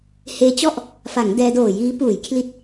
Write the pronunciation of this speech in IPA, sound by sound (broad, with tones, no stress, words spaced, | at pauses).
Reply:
heː˦˥t͡ɕɔ˥˩ʔ | fa˩˦ŋ dɛː˧doː˨˩jiː˦˥ puː˩˦jkʰli˨˩t̚